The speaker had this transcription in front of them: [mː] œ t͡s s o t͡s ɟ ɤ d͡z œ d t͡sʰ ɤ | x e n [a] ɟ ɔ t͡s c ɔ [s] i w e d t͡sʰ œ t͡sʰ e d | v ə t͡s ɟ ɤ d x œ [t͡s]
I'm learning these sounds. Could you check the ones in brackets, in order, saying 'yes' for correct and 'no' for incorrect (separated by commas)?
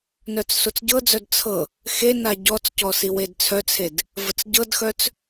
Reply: no, yes, yes, yes